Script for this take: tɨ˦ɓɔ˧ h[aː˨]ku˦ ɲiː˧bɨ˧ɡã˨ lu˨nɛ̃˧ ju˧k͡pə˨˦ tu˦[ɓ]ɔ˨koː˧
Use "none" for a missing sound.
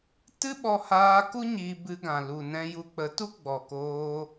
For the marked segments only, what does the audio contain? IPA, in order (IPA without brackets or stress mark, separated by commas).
aː˧, ɡ͡b